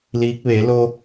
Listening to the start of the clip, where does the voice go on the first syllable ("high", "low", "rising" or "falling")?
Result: rising